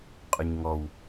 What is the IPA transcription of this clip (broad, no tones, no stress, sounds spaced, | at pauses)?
qʼ ʊ ɲ ŋ ɔ w